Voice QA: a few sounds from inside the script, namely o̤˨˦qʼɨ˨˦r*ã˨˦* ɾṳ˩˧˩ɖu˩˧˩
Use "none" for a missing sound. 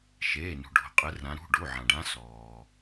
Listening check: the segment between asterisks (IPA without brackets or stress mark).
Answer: ã˨˦